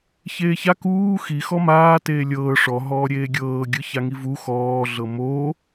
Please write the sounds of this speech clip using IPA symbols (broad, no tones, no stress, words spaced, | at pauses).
çeːça kuː xi xɔmaː teːlʲɤː ʂɔɦɔː ɾʲeːɡʲɤːɡʲɯ çaŋivu xɔːɮɤ mo